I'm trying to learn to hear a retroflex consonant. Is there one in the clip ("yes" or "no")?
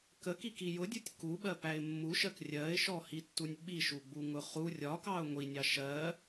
no